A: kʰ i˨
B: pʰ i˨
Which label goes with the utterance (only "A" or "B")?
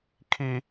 A